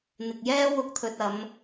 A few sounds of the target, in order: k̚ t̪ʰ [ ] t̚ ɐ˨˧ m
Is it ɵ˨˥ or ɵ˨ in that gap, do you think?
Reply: ɵ˨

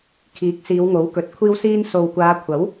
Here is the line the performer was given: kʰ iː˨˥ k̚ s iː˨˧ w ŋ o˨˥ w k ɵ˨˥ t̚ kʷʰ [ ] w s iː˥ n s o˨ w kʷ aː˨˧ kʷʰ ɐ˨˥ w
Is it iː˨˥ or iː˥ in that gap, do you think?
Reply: iː˥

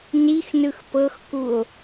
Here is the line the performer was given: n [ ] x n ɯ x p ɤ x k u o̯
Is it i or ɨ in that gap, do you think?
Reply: i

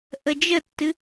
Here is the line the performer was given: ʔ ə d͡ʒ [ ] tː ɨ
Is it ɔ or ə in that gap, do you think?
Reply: ə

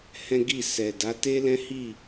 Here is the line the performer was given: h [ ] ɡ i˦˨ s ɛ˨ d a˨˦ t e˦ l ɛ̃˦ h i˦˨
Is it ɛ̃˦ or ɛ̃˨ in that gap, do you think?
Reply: ɛ̃˦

